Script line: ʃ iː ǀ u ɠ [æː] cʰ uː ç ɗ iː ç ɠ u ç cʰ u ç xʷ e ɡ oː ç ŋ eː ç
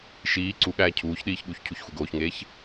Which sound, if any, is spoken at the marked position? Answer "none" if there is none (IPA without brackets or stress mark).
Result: æː